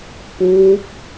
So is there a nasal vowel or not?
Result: no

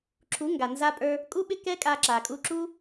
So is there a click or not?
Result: yes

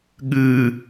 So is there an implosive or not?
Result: yes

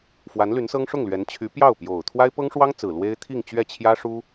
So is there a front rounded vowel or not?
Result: yes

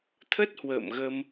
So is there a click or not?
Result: no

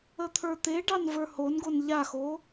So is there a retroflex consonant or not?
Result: yes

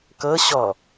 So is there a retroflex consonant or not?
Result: no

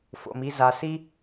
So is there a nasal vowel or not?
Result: no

